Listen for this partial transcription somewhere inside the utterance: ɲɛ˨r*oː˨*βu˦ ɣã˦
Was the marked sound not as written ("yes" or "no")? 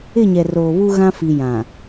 no